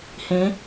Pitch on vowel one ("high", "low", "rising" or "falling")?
rising